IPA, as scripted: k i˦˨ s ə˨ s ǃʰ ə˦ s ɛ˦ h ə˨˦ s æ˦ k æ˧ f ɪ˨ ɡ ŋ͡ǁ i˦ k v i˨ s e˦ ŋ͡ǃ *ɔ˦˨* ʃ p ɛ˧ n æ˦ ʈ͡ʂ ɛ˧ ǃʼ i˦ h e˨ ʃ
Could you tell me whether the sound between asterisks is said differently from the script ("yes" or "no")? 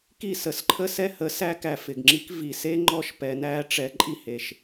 no